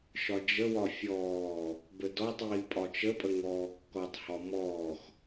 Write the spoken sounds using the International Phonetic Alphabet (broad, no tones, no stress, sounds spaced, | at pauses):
ʃ ɒ d͡ʒ ə w ɒ fʲ ɔː | b ə d ɔ tˤ iː pʼ ɒ t͡ʃ ə pʼ ə ŋ ɔː kː ɔ tˤ h ɒ m ɔː x